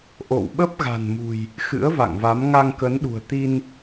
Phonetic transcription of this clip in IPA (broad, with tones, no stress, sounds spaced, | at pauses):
ʔ o̰˧˨ w ɓ ə˦˥ p̚ ɣ a̤˨˩ n m ṳ˨˩ j | x ɨ̰˧˥ ə̯ v a̰˧˨ ŋ v a˨˦ m ŋ a˧ ŋ k ə˨˦ n ɗ ṳ˨˩ ə̯ t̪ i˧ n